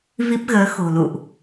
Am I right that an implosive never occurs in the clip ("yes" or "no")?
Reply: yes